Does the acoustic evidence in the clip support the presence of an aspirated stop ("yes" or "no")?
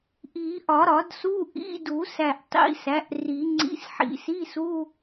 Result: no